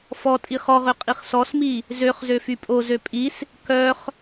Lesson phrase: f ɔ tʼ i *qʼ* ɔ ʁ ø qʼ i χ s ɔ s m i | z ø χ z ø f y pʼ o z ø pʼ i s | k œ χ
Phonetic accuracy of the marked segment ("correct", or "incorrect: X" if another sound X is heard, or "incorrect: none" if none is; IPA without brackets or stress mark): incorrect: χ